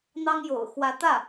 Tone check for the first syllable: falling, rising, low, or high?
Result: high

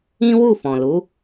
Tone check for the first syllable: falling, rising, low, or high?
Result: high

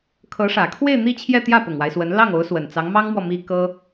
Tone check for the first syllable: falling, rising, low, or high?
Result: rising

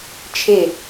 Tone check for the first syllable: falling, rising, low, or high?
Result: falling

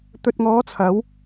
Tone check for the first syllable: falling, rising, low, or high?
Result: low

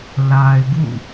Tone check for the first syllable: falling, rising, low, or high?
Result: low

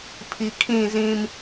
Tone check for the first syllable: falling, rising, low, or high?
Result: low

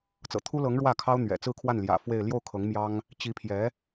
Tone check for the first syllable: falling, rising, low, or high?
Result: low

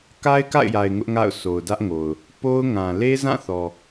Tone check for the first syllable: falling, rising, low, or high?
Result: high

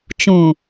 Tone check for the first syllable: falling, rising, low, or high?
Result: low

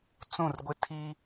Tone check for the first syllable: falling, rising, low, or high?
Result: falling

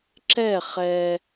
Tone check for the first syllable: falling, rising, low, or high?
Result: falling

